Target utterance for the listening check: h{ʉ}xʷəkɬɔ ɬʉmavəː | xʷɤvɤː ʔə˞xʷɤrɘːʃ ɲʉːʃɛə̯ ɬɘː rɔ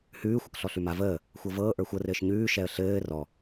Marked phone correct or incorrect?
incorrect